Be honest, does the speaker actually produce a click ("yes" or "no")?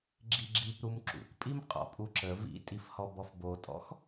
yes